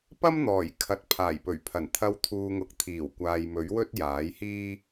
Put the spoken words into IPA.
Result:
p ɐ˥ m n̪ ɔː˨˩ j kʰ ɐ˧ t̚ pʰ aː˨˩ j p ɵ˨˩ ɥ pʰ ɐ˨˩ n t̪ʰ ɐ˧ w t̪ʰ uː˨ ŋ ʊ˨˥ k̚ t̪ʰ iː˨˩ w kʷ aː˨ j m ɵ˨˥ ɥ w ɵ˥ t̚ j aː˨˥ j h iː˥

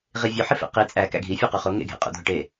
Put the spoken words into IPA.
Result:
ʁ i vʲ o ħ i f ḛ q i t͡sʼ æ k æ̰ ɡʱ i fʲ u q u χ o ŋ ḛ ɡʱ ḛ qʼ ṵ dʱ o ʈ e

